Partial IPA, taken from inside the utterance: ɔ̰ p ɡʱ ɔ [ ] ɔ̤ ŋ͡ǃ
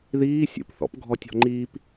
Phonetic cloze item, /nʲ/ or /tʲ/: tʲ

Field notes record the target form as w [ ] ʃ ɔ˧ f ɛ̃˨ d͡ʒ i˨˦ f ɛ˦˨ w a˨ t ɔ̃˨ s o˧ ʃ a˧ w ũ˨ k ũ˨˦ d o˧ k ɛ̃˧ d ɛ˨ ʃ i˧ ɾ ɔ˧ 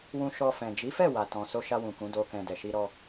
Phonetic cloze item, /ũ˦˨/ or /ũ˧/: ũ˧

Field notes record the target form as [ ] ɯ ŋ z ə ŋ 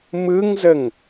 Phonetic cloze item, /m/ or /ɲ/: m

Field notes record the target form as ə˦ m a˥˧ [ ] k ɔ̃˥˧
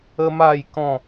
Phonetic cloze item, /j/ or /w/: j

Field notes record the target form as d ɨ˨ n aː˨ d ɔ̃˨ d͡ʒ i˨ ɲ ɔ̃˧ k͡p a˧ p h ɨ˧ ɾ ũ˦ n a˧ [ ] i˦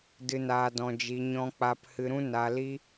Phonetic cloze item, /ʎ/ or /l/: l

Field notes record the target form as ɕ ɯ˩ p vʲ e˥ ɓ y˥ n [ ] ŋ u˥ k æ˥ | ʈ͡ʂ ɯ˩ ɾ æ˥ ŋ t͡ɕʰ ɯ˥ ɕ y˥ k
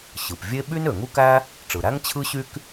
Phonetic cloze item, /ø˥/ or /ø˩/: ø˩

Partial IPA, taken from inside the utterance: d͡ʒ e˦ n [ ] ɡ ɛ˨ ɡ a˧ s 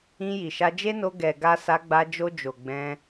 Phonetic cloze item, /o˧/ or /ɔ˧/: o˧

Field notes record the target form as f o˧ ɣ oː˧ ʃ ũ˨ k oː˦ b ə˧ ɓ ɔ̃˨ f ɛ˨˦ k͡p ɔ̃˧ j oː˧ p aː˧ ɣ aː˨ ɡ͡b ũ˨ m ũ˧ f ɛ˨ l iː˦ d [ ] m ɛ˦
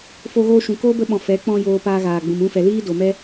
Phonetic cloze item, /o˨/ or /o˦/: o˨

